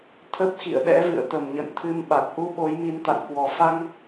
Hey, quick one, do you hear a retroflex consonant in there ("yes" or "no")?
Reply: no